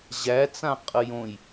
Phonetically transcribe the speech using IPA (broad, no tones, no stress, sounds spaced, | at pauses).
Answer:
ʑ æ t͡s ã qʼ ə j õ j